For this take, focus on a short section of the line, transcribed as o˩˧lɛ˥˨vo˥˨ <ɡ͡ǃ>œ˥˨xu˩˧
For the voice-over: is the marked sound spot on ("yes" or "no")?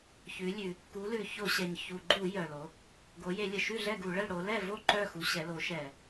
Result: no